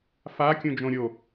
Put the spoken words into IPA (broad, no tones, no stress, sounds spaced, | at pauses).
f a kʲ ũ d͡ʒ õ ɾʲ o